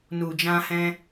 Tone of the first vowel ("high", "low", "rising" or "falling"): low